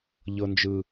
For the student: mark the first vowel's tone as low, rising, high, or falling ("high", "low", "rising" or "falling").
high